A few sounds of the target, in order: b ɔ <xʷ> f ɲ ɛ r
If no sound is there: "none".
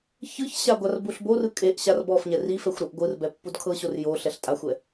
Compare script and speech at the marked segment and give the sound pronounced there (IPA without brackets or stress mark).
none